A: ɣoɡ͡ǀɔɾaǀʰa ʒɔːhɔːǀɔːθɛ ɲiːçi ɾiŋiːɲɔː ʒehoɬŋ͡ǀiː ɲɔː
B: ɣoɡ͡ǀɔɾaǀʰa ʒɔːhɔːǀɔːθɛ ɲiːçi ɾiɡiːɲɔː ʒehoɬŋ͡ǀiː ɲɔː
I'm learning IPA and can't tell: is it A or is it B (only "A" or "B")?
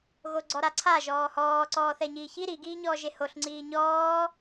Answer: B